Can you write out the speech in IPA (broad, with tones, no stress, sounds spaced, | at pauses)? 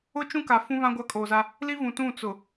ʊ˦ t͡ʃ ũ˦ k a˨ f ũ˦ β ã˦ ɡʷ a˦ kʼ oː˨ z a˦ | l i˦ v ũ˨ t ũ˦˨ t͡s ʊ˨